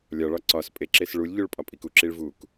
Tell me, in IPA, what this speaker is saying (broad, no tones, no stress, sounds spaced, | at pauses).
lʲ ɒ ɭ ɒ ǀ ɒ s pʼ e ǁ e s ɭ u lʲ ʎ u ɭ pʼ ɒ pʼ i k u ǁ i ɭ v u k